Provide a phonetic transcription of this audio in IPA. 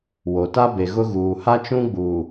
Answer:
w o˨ t a˦ b e˨ ɣ ʊ˦ ɣ uː˨ h a˦ t͡ʃ ũ˦ ɡ͡b uː˨

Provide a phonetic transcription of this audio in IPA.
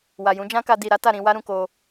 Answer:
w a˨ j ũ˨˦ d͡ʒ ã˦ k a˧ d i˨ ɾ a˨˦ t a˦˨ ɾ ĩ˧ w a˦ ɾ ũ˧ k o˧

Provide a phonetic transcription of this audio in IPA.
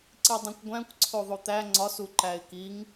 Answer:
ǀ i dˤ ĩ kʷ ɡʷ æ̃ kʷ ǀʰ o ðˤ o t̪ æ ŋ͡ǀ ɒ s u ǃ æ ɪ̯ k i ŋ

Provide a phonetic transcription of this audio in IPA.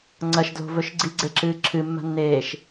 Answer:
ŋ͡ǀ ɐ ʃ d l o̤ v ɵ ʃ ɡ͡ǀ i ɡ͡ǀ e ǁ ɨː ǁʰ ɨ mː a̤ nː eː ʃ

